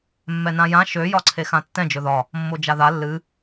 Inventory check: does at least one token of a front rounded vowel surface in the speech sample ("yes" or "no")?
yes